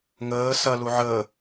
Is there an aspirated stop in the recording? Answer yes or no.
no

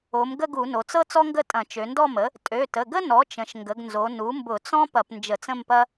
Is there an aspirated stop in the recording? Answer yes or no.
no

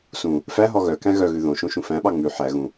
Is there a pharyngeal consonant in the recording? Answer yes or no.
yes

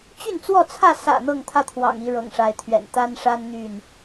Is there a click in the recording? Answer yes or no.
no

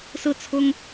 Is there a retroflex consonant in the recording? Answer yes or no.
no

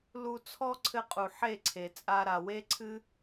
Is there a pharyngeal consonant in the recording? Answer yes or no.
yes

